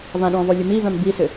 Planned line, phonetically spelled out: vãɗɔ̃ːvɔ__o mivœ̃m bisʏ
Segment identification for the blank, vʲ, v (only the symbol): vʲ